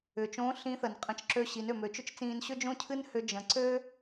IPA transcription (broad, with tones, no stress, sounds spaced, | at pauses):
ʏː˩ t͡ʃ õː˧˥ ɬ ĩ˧˥ θ ə˩ n qʼ ə̃˧ t͡ʃ ǁ ø˧ ɕ i˩˧ n ø˩ m ø˩˧ t͡ʃ ʏ˥ t͡ʃ t͡s ĩː˧ n ɕ ʏ˥ d͡ʒ õ˥ cʰ ɨ˥ n h ʏ˧ d͡ʒ ə̃˩˧ ǀ ø˥